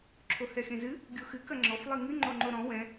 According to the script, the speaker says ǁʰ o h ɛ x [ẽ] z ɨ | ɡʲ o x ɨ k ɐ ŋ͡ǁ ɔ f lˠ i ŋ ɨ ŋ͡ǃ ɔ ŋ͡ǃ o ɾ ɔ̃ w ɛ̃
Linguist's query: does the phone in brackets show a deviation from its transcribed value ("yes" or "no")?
no